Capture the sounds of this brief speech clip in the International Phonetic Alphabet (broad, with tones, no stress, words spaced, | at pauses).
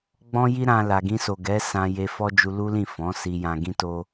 ɡ͡bɔ̃˦ji˦ɾã˧ la˨ɡĩ˧so˨ ɡɛ˨˦ sã˧ je˧fɔ˦d͡ʒu˧ lu˦lĩ˦˨ fɔ̃˨˦ si˧jã˧ɡĩ˦to˦